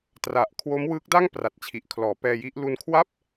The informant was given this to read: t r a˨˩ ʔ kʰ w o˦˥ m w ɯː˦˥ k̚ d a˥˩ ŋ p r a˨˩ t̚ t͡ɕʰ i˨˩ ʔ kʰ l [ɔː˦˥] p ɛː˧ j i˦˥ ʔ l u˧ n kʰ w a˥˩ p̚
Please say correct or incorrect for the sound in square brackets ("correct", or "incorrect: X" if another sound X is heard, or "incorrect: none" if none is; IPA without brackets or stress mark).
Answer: incorrect: ɔː˩˦